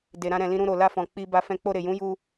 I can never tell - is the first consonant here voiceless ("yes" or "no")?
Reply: no